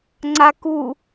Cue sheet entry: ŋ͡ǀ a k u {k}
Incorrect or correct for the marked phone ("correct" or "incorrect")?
incorrect